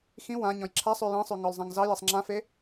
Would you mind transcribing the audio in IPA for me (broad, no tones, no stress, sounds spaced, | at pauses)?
x ĩ w ã ɲ ɔ̃ j ǁʰ a sˤ ʉ j ĩ sˤ ʉ ŋ ɔ l zˤ ã ŋ z ɑ j e sˤ ŋ͡ǁ ã f e